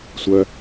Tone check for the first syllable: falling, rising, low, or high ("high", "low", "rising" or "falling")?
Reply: low